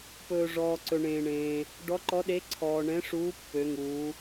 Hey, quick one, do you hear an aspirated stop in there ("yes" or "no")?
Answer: yes